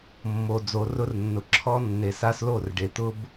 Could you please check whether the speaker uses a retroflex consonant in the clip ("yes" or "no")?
yes